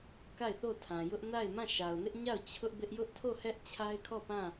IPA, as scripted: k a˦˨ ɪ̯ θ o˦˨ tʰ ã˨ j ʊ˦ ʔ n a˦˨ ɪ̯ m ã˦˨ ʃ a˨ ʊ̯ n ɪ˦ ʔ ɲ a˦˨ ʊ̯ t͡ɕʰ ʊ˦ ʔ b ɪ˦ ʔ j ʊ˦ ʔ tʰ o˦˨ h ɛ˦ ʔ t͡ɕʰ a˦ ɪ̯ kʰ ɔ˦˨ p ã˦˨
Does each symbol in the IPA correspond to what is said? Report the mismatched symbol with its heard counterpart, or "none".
none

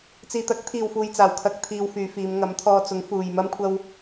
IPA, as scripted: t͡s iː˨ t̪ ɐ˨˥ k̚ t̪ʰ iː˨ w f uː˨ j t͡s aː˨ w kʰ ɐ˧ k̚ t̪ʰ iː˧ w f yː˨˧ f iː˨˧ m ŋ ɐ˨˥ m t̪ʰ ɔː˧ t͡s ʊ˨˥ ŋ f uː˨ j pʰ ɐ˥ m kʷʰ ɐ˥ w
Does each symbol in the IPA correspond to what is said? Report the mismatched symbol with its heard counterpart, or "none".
pʰ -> m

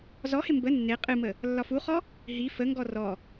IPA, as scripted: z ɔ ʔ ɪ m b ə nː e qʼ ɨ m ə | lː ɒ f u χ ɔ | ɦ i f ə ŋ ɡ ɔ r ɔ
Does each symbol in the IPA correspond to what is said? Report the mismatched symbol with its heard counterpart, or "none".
ʔ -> h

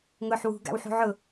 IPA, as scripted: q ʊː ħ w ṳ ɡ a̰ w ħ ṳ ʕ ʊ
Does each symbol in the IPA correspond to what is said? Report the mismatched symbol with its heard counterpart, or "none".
q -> ŋ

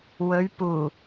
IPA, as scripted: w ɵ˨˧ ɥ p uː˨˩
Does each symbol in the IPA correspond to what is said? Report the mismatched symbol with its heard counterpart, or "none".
none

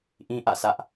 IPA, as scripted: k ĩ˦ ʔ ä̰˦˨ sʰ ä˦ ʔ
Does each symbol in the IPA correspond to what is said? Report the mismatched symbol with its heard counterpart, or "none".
k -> ʔ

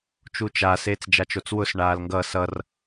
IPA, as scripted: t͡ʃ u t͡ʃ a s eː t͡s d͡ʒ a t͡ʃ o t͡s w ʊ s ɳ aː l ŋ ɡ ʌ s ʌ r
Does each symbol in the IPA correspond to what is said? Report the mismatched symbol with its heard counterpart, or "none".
none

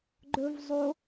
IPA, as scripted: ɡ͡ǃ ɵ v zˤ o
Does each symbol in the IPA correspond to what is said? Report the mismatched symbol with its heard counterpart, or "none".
none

